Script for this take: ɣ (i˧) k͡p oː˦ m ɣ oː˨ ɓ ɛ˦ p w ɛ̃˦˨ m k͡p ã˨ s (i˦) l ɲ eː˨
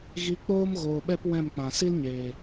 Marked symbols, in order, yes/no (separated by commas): yes, yes